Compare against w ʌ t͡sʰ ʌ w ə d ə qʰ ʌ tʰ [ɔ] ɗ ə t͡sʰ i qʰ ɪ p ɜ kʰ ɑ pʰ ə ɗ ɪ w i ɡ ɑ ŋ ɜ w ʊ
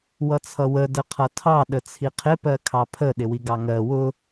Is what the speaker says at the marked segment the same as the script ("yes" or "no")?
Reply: no